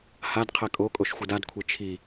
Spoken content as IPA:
h a d qʰ ɛ kʼ o kʼ o ʃ xʷ ɯ d a d kʷʰ e t͡ʃʰ i

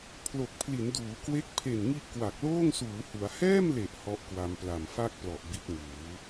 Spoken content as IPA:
pʰ l o˨˩ k̚ pʰ l i˩˦ n d uː˩˦ k w e˦˥ k̚ pʰ e˨˩ n ŋ i˦˥ ʔ k w a˨˩ k̚ l oː˥˩ ŋ s uː˩˦ h u˩˦ a̯ h ɛː˥˩ m l e˨˩ ʔ h ɔ˦˥ ʔ k w a˧ m p l a˨˩ m f a˥˩ k̚ p l ɔ˨˩ ʔ b i˦˥ t̚ ŋ uː˩˦

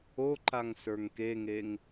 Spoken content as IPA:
o ǃ a ŋ s ə˞ ŋ k e ŋ e ŋ

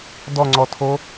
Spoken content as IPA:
d ɔ ŋ͡ǀ ɔ tʰ o

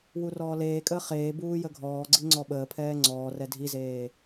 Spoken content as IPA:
w u r ɔː l eː kʼ əː χ eː b uː j ə ɡʱ ɔː ɡ͡ǀ i ŋ͡ǀ ɔ ɓ əː pʰ ɛː ŋ͡ǀ ɔː r ɛ dʱ i z eː

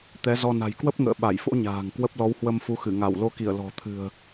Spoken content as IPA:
t̪ ɛ˨˦ z ɔ˧ n a̤˨˩ j k w ə˦˥ p̚ ŋ ə̰ː˧˨ ɓ a˧˩ j f o̰˧˥ ɲ a̤ː˨˩ ŋ k w ə˦˥ p̚ l ɔ˨˦ w h w ə˧ m f u˨˦ x ɨ˧˩ ŋ a˧˩ w l o˨˦ k i˧˩ ə̯ l ɔ̤˨˩ t̪ʰ ɨ̤˨˩ ə̯

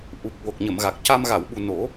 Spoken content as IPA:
ʔ u˨˩ k̚ w o˨˩ k̚ ɲ ə˨˩˨ m ɣ a˨˩ k̚ c a˧ m ɣ a˨˩˨ w ɓ u˨˩ n o˨˩˦

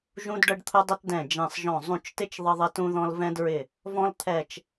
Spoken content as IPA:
ʒ ũ˥ d ɖ ə˥ ɖ t̪ʰ ʊ˥ dˤ ə˥ t d ɛ̃˦˨ d͡ʒ ɛ̃˦˨ sˤ ʒ ɔ̃˦˨ zˤ ũ˦˨ t͡ʃ t ɪ˥ t͡ʃ ðˤ ə˥ ðˤ ɪ˥ t ũ˥ ð ɔ̃˥ l v ɛ̃˥ d ɹ ɪ˦˨ | v ɔ̃˥ l t̪ʰ ɛ˦˨ t͡ʃ

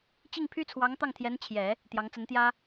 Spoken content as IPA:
t͡ɕ i˥˩ ŋ pʰ y˥ t͡sʰ w ɑ˧˥ ŋ t̪ ɑ˥˩ ŋ t̪ʰ j ɛ˧˥ n t͡ɕʰ j ɛ˨˩˦ | t̪ j ɑ˧˥ ŋ t͡s ə˧˥ n t̪ j ä˥

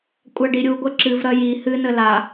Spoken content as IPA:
kʷʼ a ɖ i ɾʲ u ɡʷ ɛ ǁ ɨ v ɾ ɐ j i h ɨ n ə l a

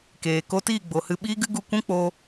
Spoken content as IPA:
k eː˨ k o˧ t iː˦˨ ɡ͡b o˨ h ɨ˧ ɓ iː˦ ɡ ɨ˦ ɡ u˧ kʷ ũ˦ k͡p o˧

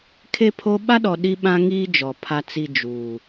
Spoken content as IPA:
kʰ e˦ pʰ o˦ ɓ a˦ ɗ ɔ˨ ɗ i˦ ɓ ã˦ ŋ iː˦ d͡ʒ ɔ˨ pʰ a˦ t͡s i˦ d͡ʒ uː˨

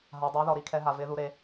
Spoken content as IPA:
ɦ a˨ dˤ a˨˦ ð ɔ˨ ɾ i˨˦ kʰ ɛ˨˦ ɦ a˨ v ɪ˨˦ ð u˨˦ ɾ e˨˦

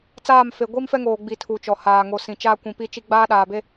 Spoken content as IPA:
t͡s aː˦˨ m f e˨ ɡʷ i˦ m f ɛ˦ ŋ oː˨ ɡ͡b i˦˨ tʰ u˨ t͡ʃ ɔ˨ h aː˨ ŋ o˨ s ĩ˨ t͡ʃ aː˦ kʷ ĩ˨ p i˦ t͡ʃ i˦ ɡ͡b aː˦ ɗ aː˨ b e˦

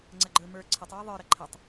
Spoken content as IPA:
ŋ͡ǀ ɐ ɡ͡ǃ ə˞ m ə˞ ǀʰ ə tˤ w ə ðˤ ə˞ ɾ ɐ ǃʰ ə tˤ

